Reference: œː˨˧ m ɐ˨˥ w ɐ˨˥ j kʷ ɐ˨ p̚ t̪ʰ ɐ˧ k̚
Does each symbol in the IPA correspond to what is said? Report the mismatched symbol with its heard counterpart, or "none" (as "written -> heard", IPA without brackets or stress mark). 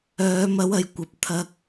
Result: none